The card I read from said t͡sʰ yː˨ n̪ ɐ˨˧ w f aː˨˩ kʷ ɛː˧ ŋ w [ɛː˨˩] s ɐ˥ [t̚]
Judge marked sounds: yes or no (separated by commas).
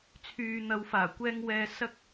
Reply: no, no